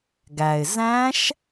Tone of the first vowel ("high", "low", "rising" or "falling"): low